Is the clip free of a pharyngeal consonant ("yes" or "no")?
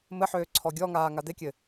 no